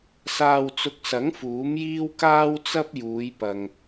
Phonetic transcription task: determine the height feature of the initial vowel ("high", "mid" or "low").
low